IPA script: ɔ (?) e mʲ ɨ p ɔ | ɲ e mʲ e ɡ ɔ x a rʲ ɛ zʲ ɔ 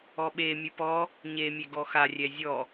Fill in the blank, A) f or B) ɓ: B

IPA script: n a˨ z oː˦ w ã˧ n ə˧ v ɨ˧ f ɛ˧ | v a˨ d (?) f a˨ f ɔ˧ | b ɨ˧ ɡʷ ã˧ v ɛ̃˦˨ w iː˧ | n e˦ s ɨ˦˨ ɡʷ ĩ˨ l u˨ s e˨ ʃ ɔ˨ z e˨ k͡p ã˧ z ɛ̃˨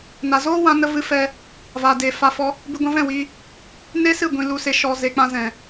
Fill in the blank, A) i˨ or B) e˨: B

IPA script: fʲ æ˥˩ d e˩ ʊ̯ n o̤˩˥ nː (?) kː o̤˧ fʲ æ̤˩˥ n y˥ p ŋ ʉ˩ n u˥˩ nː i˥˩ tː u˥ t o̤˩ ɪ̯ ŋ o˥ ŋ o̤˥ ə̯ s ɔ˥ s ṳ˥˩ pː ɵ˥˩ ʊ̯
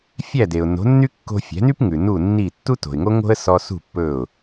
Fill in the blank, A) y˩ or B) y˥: B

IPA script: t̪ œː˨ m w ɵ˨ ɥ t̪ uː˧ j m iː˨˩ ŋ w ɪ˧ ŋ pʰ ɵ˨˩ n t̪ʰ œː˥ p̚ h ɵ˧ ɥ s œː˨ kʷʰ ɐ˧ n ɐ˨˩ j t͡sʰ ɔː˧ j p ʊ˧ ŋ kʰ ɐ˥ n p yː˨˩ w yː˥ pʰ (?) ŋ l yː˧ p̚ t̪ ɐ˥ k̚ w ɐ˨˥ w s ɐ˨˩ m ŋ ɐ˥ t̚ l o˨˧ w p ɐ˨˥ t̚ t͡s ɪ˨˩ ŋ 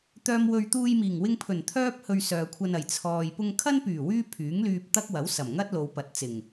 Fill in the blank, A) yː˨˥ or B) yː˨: A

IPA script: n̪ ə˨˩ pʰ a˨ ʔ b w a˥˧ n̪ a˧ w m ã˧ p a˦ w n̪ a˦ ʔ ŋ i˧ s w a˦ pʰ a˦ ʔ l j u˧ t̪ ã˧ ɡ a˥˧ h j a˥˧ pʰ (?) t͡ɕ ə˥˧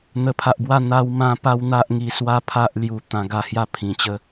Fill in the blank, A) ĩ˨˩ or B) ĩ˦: A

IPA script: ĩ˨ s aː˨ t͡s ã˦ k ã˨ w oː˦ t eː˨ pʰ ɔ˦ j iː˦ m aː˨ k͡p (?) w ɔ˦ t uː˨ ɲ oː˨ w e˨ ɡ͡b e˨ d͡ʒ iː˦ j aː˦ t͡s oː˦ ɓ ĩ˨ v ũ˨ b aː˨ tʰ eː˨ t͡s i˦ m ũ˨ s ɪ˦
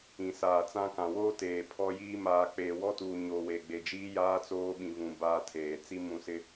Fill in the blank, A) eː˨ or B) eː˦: A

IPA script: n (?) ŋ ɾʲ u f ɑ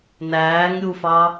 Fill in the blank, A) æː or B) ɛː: A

